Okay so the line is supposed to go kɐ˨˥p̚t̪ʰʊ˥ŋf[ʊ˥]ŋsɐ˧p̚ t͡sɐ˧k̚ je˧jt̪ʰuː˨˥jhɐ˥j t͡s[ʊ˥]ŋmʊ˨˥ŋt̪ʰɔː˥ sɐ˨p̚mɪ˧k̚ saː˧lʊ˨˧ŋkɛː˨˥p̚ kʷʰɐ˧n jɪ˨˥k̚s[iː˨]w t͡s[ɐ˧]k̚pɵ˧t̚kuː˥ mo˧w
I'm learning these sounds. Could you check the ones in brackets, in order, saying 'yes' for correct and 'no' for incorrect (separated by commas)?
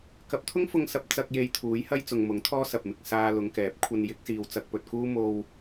no, no, yes, yes